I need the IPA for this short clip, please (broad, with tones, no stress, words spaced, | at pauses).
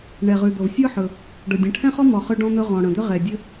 ɳɛ˨˩ʁʉ˨˩d̪ɤ˨˩v sʲɤ˥ħɵ˨˩ | ɖɤ˨˩ dʲə̃˨˩ʈʰɛ̃˥χɔ˥mɔ˨˩ χʏ˥ɖɔ̃˥n̪ɵ˥ ʁɔ̃˨˩ɽə̃˨˩d̪ʏ˥ ʁɛ˨˩dʲə˥